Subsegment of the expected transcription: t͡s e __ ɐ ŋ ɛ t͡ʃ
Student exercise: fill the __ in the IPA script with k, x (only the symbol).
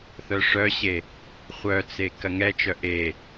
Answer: k